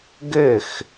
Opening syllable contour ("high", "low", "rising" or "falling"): falling